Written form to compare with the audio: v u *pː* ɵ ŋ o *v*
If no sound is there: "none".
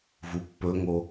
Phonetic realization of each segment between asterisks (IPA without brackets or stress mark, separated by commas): pː, none